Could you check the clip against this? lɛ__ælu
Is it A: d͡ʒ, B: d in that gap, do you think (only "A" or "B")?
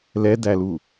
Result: B